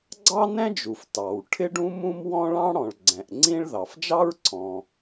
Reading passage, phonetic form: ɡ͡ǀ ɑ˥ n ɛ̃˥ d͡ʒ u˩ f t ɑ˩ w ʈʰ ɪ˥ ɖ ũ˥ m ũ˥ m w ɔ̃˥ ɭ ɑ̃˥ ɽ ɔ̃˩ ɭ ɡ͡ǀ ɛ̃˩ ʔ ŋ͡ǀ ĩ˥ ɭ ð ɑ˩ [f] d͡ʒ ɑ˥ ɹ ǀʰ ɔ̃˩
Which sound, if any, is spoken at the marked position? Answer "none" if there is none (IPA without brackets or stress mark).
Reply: f